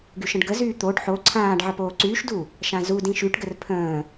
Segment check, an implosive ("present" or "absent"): absent